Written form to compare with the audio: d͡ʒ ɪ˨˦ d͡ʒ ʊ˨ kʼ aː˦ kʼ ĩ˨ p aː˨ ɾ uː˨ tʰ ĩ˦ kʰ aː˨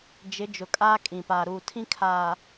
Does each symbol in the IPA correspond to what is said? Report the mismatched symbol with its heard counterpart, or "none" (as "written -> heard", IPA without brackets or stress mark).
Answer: none